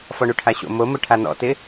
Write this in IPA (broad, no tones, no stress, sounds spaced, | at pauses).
f ɔ ɳ u ʈʰ a ɕ o̰ m o m ʊ ʈʰ a n ɔ̰ t ɪ